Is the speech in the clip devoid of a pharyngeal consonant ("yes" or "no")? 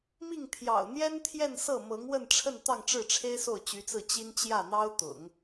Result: yes